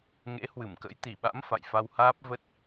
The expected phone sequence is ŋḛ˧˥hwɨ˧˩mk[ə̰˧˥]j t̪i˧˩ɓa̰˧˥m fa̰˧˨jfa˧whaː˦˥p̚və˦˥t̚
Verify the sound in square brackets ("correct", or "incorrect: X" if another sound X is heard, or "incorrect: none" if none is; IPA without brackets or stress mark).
correct